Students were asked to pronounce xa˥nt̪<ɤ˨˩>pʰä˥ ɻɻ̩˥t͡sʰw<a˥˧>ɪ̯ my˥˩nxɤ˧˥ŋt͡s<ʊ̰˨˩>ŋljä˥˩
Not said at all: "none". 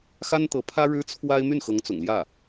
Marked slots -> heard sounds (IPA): ɤ˧˥, a˥, ʊ̰˨˩

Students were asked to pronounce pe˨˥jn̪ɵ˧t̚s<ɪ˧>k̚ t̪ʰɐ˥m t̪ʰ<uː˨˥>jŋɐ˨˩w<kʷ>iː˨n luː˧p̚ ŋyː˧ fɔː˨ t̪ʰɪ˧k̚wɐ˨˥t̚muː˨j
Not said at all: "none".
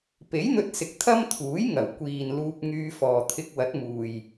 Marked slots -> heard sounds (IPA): ɪ˨, uː˨˥, kʷ

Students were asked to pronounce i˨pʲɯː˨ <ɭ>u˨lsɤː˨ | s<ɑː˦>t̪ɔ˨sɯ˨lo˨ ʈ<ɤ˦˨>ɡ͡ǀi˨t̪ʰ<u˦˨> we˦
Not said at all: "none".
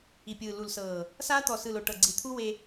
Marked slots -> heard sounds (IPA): l, aː˦, ɤ˨, u˦

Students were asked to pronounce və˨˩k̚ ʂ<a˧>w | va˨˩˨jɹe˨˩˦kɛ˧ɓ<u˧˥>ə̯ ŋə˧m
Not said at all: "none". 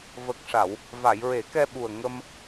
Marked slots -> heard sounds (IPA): a˨˩˨, u˨˩

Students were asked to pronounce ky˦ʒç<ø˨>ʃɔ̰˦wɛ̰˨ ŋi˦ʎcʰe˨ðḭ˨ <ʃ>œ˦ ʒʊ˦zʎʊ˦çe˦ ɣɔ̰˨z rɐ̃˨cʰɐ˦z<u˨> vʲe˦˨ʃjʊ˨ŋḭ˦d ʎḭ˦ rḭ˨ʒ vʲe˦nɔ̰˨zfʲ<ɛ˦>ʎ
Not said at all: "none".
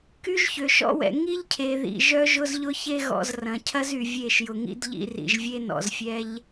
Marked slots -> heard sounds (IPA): ø˨, ʒ, y˨, ɛ˦

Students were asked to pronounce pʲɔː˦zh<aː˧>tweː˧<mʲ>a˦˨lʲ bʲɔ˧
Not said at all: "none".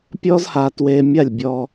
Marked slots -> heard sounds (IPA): aː˧, mʲ

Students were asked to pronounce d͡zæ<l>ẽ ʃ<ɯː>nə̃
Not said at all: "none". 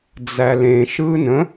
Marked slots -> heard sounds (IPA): l, ɯː

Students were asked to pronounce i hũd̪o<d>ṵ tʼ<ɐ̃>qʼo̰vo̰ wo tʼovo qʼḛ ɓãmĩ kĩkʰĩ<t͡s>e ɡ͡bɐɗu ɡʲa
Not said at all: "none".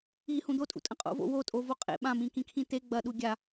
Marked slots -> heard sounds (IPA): tʼ, ɐ̃, t̪

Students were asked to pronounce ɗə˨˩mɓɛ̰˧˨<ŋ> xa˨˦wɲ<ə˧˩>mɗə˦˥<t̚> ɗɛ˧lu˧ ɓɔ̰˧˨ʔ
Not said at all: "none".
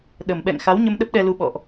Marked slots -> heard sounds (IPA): ŋ, ə˧, p̚

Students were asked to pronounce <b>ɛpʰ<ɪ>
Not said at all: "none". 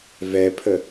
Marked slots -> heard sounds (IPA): v, ə

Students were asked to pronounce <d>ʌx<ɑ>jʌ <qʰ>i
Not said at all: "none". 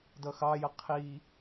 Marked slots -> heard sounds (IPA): d, ɑ, qʰ

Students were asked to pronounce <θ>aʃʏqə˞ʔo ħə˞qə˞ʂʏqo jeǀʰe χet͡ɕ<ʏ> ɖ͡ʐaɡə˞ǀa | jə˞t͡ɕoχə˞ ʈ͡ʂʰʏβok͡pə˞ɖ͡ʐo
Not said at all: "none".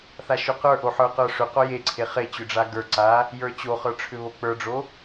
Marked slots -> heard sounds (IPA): θ, ʏ

